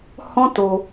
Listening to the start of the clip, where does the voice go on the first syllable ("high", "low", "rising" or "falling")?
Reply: high